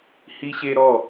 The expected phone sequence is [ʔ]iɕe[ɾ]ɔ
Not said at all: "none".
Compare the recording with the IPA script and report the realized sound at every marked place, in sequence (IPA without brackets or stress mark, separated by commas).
h, ɾ